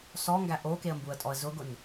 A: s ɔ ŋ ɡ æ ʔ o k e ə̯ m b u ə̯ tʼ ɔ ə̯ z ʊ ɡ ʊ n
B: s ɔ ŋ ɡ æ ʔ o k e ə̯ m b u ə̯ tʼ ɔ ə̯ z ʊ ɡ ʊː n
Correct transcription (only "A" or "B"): A